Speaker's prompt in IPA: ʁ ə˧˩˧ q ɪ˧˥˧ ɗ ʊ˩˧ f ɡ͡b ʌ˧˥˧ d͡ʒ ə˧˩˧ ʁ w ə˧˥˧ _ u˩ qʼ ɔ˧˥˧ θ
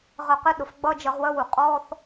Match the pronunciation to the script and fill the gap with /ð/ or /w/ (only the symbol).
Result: w